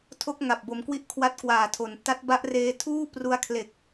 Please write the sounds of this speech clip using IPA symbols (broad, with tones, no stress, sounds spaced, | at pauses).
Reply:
tʰ o˦˥ k̚ ŋ a˨˩ p̚ b o˧ m k w i˥˩ ʔ kʰ w a˥˩ t̚ k w aː˨˩ tʰ o˩˦ n t a˦˥ t̚ b a˦˥ ʔ r eː˧ tʰ uː˥˩ p r u˧ a̯ kʰ l e˨˩ k̚